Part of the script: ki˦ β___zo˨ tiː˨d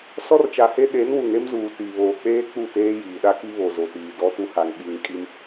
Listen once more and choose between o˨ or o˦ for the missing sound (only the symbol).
o˨